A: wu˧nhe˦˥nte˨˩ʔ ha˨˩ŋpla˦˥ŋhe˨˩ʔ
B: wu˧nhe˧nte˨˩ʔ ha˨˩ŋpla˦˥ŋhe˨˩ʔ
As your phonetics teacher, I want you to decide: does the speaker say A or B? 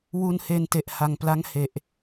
B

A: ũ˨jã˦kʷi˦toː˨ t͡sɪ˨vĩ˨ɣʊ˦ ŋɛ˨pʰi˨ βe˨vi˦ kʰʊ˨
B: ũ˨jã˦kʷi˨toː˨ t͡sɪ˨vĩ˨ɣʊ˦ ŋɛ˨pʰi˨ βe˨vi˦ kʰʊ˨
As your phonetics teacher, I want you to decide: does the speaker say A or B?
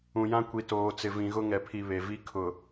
B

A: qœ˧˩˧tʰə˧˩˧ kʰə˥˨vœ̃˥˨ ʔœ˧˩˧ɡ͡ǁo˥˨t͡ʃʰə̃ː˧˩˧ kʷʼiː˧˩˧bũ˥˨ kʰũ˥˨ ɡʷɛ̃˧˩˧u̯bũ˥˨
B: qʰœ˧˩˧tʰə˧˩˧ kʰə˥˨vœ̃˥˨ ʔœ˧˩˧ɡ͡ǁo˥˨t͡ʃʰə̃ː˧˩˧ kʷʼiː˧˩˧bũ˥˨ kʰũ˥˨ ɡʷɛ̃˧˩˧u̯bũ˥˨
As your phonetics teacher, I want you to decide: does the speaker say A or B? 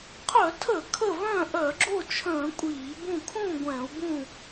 B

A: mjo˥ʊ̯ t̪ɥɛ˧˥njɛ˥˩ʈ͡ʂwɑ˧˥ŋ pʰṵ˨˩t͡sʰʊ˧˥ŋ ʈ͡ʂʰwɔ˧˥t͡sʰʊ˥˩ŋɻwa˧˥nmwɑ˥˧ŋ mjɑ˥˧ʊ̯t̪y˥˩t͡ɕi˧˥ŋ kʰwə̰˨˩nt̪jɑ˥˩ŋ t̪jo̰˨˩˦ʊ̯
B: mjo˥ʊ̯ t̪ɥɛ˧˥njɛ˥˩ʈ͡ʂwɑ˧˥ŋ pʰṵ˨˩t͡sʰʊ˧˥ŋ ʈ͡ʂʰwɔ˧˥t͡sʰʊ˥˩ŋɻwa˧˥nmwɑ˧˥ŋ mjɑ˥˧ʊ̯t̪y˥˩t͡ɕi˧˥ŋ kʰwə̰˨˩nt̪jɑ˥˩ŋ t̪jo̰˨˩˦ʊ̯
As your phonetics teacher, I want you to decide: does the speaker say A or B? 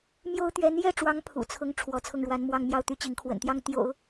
A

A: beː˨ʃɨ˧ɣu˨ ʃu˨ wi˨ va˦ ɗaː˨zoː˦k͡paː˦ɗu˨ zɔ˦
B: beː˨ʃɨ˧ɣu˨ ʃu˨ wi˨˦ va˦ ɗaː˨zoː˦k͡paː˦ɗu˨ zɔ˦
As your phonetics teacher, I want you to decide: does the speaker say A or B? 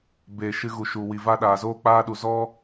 A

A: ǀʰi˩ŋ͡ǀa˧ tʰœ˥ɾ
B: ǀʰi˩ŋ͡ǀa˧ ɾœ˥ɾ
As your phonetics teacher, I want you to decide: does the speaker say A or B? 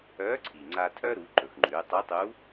A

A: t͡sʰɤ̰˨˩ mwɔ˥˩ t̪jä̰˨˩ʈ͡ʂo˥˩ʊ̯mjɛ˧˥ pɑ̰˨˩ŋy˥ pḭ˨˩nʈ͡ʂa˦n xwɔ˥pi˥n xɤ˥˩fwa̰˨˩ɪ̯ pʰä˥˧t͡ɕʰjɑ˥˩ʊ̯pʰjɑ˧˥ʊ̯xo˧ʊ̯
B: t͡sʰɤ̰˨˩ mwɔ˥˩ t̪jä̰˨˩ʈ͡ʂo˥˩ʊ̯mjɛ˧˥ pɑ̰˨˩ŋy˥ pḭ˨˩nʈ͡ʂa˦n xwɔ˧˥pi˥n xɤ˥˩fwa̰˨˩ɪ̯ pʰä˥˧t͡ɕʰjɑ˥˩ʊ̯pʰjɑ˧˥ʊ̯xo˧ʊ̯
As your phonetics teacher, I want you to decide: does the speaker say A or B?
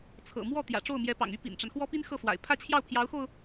A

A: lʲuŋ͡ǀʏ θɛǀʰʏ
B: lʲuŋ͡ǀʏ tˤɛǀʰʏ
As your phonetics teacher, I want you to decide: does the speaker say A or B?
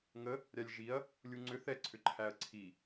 A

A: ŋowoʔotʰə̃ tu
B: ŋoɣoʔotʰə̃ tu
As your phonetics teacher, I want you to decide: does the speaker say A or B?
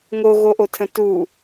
B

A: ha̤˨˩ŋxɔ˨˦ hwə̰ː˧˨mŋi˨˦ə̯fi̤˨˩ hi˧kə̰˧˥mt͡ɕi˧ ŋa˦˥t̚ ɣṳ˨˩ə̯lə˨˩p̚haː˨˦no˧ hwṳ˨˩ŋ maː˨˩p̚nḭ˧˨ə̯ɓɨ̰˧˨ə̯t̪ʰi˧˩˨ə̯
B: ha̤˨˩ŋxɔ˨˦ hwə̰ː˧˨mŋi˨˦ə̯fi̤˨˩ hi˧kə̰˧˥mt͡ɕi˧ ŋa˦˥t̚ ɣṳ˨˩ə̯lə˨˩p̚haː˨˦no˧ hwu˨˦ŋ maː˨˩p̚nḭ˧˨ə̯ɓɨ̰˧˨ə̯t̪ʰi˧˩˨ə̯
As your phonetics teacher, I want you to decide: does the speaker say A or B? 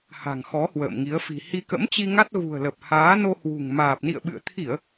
A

